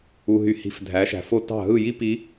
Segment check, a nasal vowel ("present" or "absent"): absent